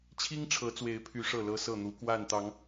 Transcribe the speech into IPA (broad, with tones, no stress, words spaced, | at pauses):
t͡ɕʰi˦ŋʈ͡ʂʰɤ˨˦t͡swe˨˦ɪ̯pʰy˨˦ ʂɤ˥˨lɤ˦sɤ˥˨ n̪u˨˦kwa˥˨nt̪ɑ˨˦ŋ